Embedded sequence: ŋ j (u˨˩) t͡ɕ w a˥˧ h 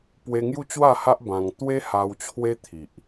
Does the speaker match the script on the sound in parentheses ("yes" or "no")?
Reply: no